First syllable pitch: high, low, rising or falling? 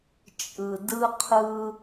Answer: low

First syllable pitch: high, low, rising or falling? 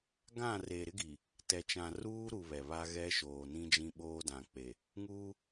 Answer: falling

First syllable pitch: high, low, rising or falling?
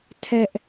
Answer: high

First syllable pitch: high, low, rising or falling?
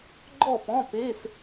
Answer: falling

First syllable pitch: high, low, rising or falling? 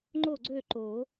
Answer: falling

